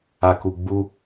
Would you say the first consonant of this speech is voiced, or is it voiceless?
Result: voiceless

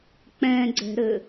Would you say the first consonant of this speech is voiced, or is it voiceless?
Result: voiceless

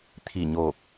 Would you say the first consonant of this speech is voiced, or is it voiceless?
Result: voiceless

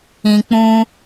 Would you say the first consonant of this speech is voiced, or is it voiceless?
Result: voiceless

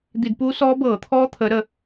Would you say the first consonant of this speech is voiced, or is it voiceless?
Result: voiced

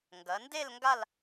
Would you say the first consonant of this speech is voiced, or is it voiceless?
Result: voiced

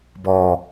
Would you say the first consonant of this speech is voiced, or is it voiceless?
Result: voiced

